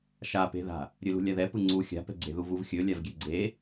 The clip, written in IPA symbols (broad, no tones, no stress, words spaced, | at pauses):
ʃape̤ða̤ | ɾʲɵlṳlʲaðɛ pɯŋ͡ǀu xʲa̤pɛ̤ɡ͡ǀe̤ðu vuvxʲɵ lʲavɡʲeɡ͡ǀe